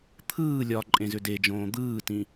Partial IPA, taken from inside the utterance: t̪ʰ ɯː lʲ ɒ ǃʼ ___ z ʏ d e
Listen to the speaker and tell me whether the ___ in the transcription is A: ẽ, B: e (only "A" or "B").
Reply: A